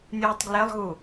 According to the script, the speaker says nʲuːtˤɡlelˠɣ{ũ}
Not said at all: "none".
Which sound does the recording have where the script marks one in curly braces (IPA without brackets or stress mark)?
u